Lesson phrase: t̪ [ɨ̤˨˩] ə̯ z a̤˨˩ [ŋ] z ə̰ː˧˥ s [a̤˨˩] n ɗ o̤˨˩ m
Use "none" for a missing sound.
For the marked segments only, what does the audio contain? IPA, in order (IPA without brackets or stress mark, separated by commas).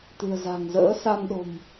ɨ̤˨˩, ŋ, a˧